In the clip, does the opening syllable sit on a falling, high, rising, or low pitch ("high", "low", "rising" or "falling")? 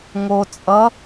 low